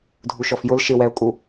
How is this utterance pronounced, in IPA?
dʱ u ʃ ɔ f j ʊ l ʃ ɪ w ɛ ʊ̯ kʼ u

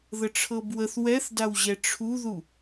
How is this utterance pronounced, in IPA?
ð ə ʈ͡ʂʰ ɤ b w ə θ w ɛ θ d a w ʑ ɛ ʈ͡ʂʰ u ð u

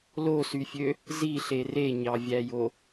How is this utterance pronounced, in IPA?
l o s y fʲ ø | z i ɬ e r e ɲ ɑ vʲ æ j o

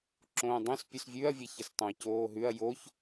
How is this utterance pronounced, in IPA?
ǁ õː dˤ õ s pʲ ʉ s vʲ ʉ ɐ̯ vʲ e ç ə s tˤ õ ɐ̯ c oː ɦ ʉ ɐ̯ j o ç

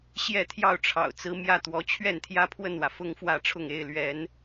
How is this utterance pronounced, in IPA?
ɕ j ɛ˥˧ t̪ʰ j ɑ˥˩ ʊ̯ ʈ͡ʂʰ ɑ̰˨˩ ʊ̯ t͡s ɹ̩˧˥ m j ä˥˩ t̪ w ɔ˧˥ t͡ɕʰ ɥ ɛ˥˩ n t̪ʰ j ä˥ pʰ w ə˥˩ n w ä˩ f ʊ˥ ŋ f w ä˥˧ ʈ͡ʂʰ ʊ˥˩ ŋ e˥ ɪ̯ l ɥ ɛ˧˥ n

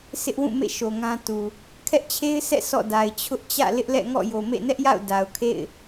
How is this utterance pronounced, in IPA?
s ɪ˦ ʔ w ũ˦˨ m ḛ˦˨ ʃ o˨ ŋ ã˦ t u˨ | kʰ ɛ˦ ʔ t͡ɕʰ e˦ ɪ̯ s ɛ̰˦˨ sʰ ɔ̰˦˨ d a˨ ɪ̯ t͡ɕʰ ʊ˦ ʔ t͡ɕ ä̰˦˨ l ɪ˦ ʔ l ɛ̰˦˨ ŋ ɔ̰˦˨ j o˨ m ḛ˦˨ n ɛ˦ ʔ j a̰˦˨ ʊ̯ d a˨ ʊ̯ kʰ ḛ˦˨ ɪ̯

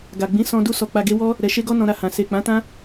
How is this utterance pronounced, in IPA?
ɡ a˨ ɡ͡b ĩ˨˦ s ɔ̃˧ d u˦ s ɔ˧ k͡p a˧ ɡ e˦ w ɔ˦ | ɾ ɛ˨ ʃ e˧ ɡ ɔ˧ n ɔ̃˧ ɾ a˧ h ã˨ s e˨ k͡p ã˨˦ t ã˦

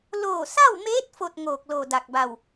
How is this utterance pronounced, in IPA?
l oː˧˩ s a˥˨ w m eː˧˥ t̚ f o˥˨ t̚ ŋ oː˧˩ k̚ l o˧˩ d a˧˩ k̚ b a˧˩ w

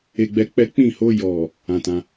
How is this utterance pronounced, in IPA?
e˦ ɡ͡b ɛ˦ k͡p ɛ˦ k͡p ĩ˦˨ h o˧ j ɔ˨ | ã˧ t ã˧

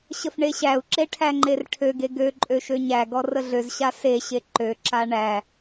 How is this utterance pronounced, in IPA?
ɕ ə f ɳ e ɕ æ u̯ ǁ e ʈʰ æ ŋ͡ǃ e r ʈʰ ø ɡ e ɡ ø ǃʼ ø ʃ ø ɲ æ ɡ ɔ r ə ɮ ø z ɕ a s e ɕ e ǃ ø ǁ a ɳ æ

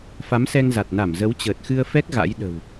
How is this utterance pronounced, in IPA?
f a˨˦ m s ɛ˧ ŋ z a˨˩ t̚ n a˧˩ m z ə˨˦ w t͡ɕ əː˨˩ t̚ x ɨ˧ ə̯ f ɛ˦˥ k̚ ɣ a̰˧˥ j ɗ ə̤˨˩ w

